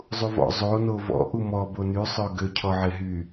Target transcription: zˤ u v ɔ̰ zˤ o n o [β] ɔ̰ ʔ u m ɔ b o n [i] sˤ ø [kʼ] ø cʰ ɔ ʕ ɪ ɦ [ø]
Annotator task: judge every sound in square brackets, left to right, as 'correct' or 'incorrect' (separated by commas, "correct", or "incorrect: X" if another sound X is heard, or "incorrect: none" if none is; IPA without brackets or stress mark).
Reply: incorrect: v, incorrect: y, incorrect: ɡ, incorrect: y